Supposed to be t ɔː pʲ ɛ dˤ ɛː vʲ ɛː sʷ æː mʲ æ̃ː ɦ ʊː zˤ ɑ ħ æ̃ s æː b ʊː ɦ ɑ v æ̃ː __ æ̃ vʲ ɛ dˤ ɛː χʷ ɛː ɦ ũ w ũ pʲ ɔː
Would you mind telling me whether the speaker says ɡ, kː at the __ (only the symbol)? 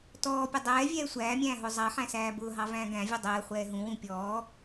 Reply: ɡ